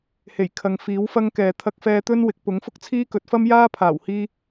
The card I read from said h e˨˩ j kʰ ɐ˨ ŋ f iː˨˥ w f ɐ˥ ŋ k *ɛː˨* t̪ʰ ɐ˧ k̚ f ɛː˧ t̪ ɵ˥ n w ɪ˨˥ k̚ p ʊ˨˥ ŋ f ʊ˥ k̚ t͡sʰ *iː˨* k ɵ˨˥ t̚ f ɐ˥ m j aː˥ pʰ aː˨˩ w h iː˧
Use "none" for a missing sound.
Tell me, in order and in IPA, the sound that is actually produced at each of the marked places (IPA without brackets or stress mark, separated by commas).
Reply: ɛː˨, iː˥